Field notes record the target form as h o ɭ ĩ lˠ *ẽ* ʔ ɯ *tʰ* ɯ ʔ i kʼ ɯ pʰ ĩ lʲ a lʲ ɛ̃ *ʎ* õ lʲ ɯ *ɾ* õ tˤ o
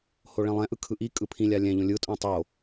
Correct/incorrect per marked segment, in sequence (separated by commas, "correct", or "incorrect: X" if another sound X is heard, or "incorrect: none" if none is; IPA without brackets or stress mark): incorrect: ɛ̃, incorrect: kʰ, correct, incorrect: tʼ